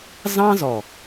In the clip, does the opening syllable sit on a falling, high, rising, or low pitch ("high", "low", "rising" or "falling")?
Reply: high